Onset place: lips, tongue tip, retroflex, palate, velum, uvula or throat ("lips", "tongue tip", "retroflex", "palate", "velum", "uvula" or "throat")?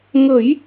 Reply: velum